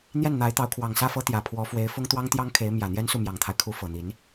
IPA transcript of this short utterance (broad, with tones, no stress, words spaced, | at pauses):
n̪jɛ˥˩nn̪a˧˥ɪ̯t̪ɑ˧˥ʊ̯kʰwɑ˨˩ŋ sä˥˩fɤ˥t̪jä˨˩ pʰwɔ˧˥fwe˧˥ɪ̯ fʊ˥ŋt̪wɑ˥ŋt̪jɑ˥ŋ kʰe˧˥ɪ̯mjä˨˩ n̪jɛ˥nsu˥˩mjɑ˨˩ŋt̪ʰa˦ɪ̯ kʰu˧˥fɤ˨˩n̪i˧˥n